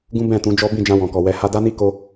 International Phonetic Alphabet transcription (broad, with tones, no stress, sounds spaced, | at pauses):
ɡ ũ˦ b ɛ̃˦˨ t ũ˨˦ d͡ʒ ɔ˦ b ĩ˦˨ d͡ʒ ã˧ w ɔ̃˨ k ɔ˨ w ɛ˨˦ h a˦ d a˦ n i˦ k o˦